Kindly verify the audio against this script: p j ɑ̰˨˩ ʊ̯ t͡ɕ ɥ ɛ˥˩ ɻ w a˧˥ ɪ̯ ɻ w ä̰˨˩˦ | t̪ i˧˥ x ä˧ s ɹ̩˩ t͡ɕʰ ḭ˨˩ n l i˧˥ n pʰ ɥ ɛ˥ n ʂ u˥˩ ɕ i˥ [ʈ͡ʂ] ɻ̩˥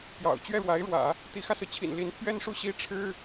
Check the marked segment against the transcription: incorrect: ʈ͡ʂʰ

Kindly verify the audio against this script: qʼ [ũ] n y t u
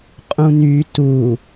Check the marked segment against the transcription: correct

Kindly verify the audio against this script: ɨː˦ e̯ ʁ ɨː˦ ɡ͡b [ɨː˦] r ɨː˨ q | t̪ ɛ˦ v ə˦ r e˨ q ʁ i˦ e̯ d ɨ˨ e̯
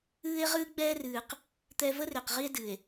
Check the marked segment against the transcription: incorrect: ɛː˦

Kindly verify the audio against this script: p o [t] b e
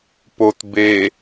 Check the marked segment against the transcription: correct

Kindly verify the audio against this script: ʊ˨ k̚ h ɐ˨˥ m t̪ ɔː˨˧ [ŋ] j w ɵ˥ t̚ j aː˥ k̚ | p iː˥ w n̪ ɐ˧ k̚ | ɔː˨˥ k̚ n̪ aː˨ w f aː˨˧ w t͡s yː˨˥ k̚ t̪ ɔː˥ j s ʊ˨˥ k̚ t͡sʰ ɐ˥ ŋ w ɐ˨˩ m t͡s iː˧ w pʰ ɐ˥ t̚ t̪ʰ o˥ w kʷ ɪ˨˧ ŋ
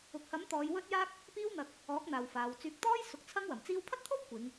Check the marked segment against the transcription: incorrect: none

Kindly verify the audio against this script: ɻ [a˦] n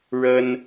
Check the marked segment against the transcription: incorrect: ə˦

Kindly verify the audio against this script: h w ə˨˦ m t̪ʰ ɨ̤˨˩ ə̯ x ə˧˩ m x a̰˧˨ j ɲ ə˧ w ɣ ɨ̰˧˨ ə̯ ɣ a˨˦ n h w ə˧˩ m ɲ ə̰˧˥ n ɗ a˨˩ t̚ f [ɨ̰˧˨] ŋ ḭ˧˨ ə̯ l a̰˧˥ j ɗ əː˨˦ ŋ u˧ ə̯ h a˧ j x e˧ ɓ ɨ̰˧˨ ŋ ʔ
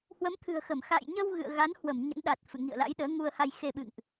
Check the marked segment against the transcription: correct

